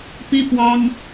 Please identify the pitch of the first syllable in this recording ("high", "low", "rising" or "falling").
high